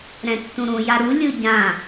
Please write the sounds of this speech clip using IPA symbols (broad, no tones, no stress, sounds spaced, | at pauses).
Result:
ɾ ɛ̃ tː ũ ɾ ũ j a ɾ u lʲ ɯ ɟ ã